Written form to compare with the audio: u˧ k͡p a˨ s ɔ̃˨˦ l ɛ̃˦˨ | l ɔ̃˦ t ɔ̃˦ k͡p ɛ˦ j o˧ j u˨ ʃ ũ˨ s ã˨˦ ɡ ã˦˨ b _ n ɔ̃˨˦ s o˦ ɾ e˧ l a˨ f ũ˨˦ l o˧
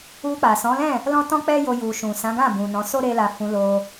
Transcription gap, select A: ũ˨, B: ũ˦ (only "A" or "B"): A